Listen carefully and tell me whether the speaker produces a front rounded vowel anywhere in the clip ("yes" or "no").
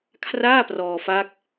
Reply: no